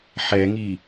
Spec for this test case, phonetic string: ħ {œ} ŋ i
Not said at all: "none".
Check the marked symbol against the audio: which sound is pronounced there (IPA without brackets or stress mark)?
ɛ